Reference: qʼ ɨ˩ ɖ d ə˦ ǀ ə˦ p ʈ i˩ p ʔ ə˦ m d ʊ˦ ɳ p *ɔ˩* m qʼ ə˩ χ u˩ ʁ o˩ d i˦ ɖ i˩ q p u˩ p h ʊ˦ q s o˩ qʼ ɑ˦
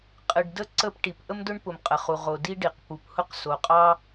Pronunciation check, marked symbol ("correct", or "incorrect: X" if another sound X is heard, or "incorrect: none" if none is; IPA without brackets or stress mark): incorrect: ʊ˩